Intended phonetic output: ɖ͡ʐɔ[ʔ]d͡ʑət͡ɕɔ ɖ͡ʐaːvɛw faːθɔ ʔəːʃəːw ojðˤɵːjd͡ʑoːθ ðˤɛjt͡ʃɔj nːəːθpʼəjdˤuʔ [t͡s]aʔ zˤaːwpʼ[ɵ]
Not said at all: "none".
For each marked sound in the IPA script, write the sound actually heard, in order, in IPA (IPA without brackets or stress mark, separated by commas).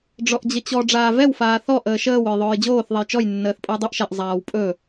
ʔ, ʃ, ɵ